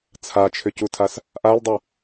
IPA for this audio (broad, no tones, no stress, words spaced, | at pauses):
t͡sʰat͡ʃʰʏcutʰas | ʔaldˤu